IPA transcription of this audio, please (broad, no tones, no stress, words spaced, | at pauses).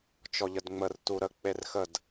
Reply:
t͡ʃɔʎədŋ͡mər tuɾə k͡perxəd